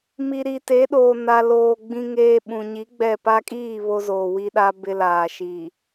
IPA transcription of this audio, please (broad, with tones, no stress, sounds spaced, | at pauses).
m i˨ ɾ i˨ t e˨˦ ɗ oː˨ n a˨ l oː˨ ɡ͡b ĩ˦ ŋ eː˦ ɓ ũ˨ ɲ i˨˦ ɡ͡b ɛ˦˨ p a˦ kʼ iː˦˨ β o˦ z oː˨ w i˦ ɗ a˦ b ɪ˦ l aː˨ ʃ i˨